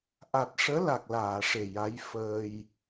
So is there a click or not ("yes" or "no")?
no